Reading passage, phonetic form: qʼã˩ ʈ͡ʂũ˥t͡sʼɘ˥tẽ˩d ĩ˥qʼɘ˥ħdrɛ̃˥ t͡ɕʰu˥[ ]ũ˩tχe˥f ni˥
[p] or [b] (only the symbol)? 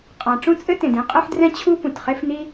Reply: p